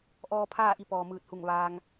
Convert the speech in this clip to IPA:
ʔ ɔː˧ pʰ aː˥˨ ʔ i˧ p ɔː˩ m ɯː˧˩ t̚ h u˧˩ ŋ ʋ aː˧ ŋ

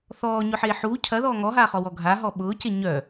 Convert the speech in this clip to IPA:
θ ɔː ɲ ʊ ħ eː ħ uː cʰ ɐ ð ɔː ŋ ɔ ɦ aː χ ɔ w ɔ ɡʱ a ɦ ɔ ɓ ʊː c e ɲ œ

